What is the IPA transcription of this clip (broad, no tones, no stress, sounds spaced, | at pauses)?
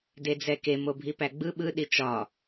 d e d͡z ɛ k e m o bʱ i p æ ɡ͡b ɯ ɓ ɯ ɗ i t͡ʃ ɒ